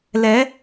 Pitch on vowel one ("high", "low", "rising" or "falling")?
rising